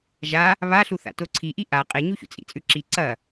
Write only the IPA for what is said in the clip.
ʒ a | β a ɬ u θ a̰ t o ǀʰ i ʔ i ʔ a qʼ e ɲ u ç ṵ t͡sʼ ḭ t͡sʼ ʉ ǁ i ǀ ɐ

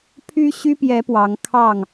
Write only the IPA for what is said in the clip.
pʰ y˦ ɕ y˦ p j ɛ˨˦ p w ɑ˨˦ ŋ kʰ ɑ˥˨ ŋ

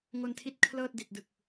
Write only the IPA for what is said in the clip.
ŋ o˧ n tʰ i˦˥ t̚ kʰ l ɤː˥˩ t̚ d i˨˩ t̚ d ɯ˨˩ k̚

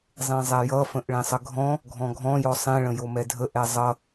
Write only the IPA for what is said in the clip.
zˤ ẽ zˤ ɛ j ʌ f ə̃ ʔ ɭ ẽ sˤ ə ɡʱ ɔ̃ | ɡʱ ɔ̃ ɡʱ ɔ̃ j ɔ sˤ ẽ ɭ ə̃ j o m ɛ dʱ ə ʔ ɛ zˤ ʌ

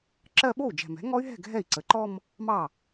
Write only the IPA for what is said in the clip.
ǁ ɜ˥˧ ɓ o˥˩ u̯ d͡ʒ ɛ̤˨˩ m ɛ̤˩˥ ŋ ɔ˦˥ y̯ ɦ ɛ̤˥˩ ɡʱ ɛ˥˩ i̯ ǀ ə˩˥ ǃ ɔ˥˧ m | m ɑ˥˩

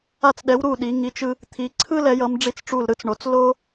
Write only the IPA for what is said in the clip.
a˧˩ t͡s ɗ ɛ˩˧ w ɾ u˧˩ ɗ i˩˧ ŋ i˩˧ t͡ʃ ɯ˧ | t̪ʰ i˩˧ ǀʰ ɯ˥ l ɛ˩˧ j ʌ˩˧ m ɖ͡ʐ i˧˩ t͡s ʈ͡ʂ u˧˩ l ɾ ɯ˥˧ t͡s ɳ o˩˧ t͡s l o˥

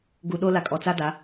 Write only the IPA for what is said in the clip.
ɡ u˨ ɗ o˦ l a˨ kʼ ɔ˨ t͡s a˦ d a˨˦

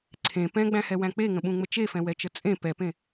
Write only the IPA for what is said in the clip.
ǀʰ ẽ p ɛ̃ ɡ͡b æ̃ h ɛ w æ̃ k͡p e ŋ ə̃ ɓ ũ ŋ͡m ə t͡ʃ e f ɛ̃ w ɛ t͡ʃ ə t͡sʼ ẽ p ɛ p ẽ

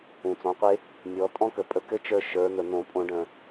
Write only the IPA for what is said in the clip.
ũ˩ t͡s ɔ̃˩˧ qʷ e˧ | mʲ ɔ˩˧ tʼ ɔ̃˦˥ k ə˩ pʼ ə˧ k ɘ˦˥ t͡ʃ ə˞˧ ʃ ə˞˩˧ n̪ ə˩ n̪ õ˧˩˧ pʼ õ˧˩˧ ɖ ə̃˩

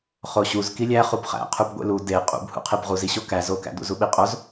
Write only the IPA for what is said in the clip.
χ o ɕ u z k i lʲ æ χ u b χ æ̰ qʰ u b ɡʷ ḛ l u d e qʼ ṵ b h ṵ qʰ e b ʁ u z i ɕ o k æ z o k æ̰ d ṵ z u ɓ i qʼ o z

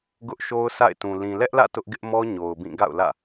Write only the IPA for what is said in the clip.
ɡ ʊ˦ ʔ ʃ o˦ ʊ̯ sʰ a̰˦˨ ɪ̯ t ũ˨ l ĩ˨ l ɛ˦ ʔ l ä̰˦˨ t ʊ˦ ʔ ɡ ɪ˦ ʔ m ɔ˦ ɲ o˨ ʊ̯ b ĩ˦˨ ɡ a̰˦˨ ʊ̯ l ä̰˦˨

